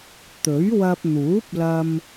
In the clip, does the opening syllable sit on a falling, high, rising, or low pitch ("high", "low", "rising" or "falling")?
rising